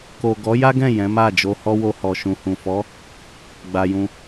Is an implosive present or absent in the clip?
absent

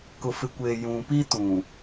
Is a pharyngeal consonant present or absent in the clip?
absent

